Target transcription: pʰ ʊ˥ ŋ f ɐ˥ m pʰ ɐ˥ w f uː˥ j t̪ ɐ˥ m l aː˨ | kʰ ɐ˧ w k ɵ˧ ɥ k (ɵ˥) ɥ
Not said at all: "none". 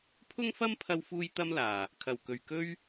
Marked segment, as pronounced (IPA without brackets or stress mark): ɵ˥